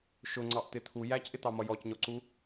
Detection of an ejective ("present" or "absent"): absent